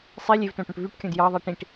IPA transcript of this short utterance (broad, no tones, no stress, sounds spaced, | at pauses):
sˤ i lʲ e v t õ ʈ õ ʈ v y ʈ kʲ õ d j ɑ ðˤ i ʈ ĩ ʈ